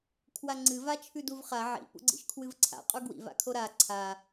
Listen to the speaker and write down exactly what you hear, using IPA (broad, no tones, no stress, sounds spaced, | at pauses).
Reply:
kʰ w a ŋ͡ǀ ɨ v a t͡ʃʰ ʉ d u v χ a ʕ ḭ p ṵ ɡ͡ǀ ḭ ʃ kʰ w ɨ v ǀʰ a̰ qʼ u ɡ w ḭ v a̰ kʰ o ɾ a ǀʰ a